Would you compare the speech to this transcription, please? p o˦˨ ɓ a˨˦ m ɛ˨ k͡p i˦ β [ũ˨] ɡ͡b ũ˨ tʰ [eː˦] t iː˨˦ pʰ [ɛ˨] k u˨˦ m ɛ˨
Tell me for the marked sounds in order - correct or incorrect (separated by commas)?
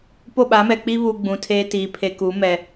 incorrect, correct, incorrect